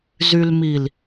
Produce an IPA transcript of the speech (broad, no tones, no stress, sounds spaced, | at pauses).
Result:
z y l m i l